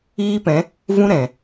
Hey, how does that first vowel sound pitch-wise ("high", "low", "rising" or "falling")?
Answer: high